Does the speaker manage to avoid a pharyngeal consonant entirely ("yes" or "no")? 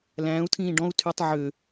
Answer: no